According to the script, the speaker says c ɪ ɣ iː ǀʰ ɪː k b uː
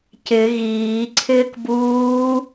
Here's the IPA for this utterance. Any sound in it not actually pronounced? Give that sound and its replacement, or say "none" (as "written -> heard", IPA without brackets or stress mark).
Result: none